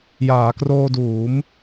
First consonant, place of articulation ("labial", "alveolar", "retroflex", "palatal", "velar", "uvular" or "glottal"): palatal